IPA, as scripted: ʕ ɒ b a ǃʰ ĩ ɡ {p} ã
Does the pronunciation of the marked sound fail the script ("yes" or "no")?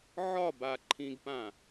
no